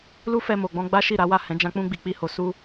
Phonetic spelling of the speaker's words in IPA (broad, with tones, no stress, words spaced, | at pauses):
lu˦fɛ˧ mo˨ɡ͡bɔ̃˧ ɡ͡ba˦ʃi˦˨ɾa˨˦wa˦˨ hɛ̃˨˦d͡ʒã˧ k͡pũ˧ɡ͡bi˨k͡pi˧ho˨ su˧